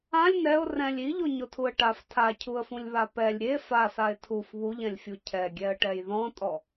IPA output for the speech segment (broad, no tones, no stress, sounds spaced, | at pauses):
ã lʲ n ɛ ʊ̯ r ɛ̃ lʲ i ʎ o ɲ o tʰ u ə̯ ʈ a f tʰ a cʰ u ə̯ f ũ lʲ β a p ɛ lʲ ɾʲ e f a s a ɪ̯ tʰ u f β u ʎ ɛ̃ lʲ fʲ u cʰ ɛ ɡʲ ɛ ə̯ ʈ ɛ j ð ɔ̃ tʼ ɔ